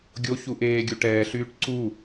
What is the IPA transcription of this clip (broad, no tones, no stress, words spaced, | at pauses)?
ɡʲo çuʔeːɡʲu ʈɛːɬyːʈ ǀu